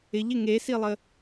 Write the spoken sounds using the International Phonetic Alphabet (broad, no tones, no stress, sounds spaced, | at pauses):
ɪ ʎ ɪ ŋ e s i lˠ ə